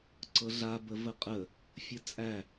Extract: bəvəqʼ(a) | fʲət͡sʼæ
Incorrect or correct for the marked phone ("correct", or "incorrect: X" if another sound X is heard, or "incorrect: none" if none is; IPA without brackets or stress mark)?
incorrect: ə